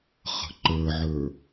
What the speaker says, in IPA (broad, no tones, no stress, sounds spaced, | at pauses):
χ ə̤ ǃ ə˞ ʕ ə˞